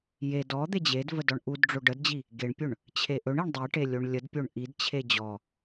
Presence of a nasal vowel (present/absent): absent